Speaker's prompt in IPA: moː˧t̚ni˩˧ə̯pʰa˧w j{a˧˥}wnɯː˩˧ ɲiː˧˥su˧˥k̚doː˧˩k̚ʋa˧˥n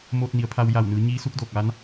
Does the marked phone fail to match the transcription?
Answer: yes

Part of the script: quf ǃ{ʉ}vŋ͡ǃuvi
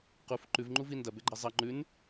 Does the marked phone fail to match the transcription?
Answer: no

